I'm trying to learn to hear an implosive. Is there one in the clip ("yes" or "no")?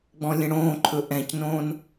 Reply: no